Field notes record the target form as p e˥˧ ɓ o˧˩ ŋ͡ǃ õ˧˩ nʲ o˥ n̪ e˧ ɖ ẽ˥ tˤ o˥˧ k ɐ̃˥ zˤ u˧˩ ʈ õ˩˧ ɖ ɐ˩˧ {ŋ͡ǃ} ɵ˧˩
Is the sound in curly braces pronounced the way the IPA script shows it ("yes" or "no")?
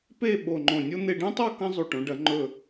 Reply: yes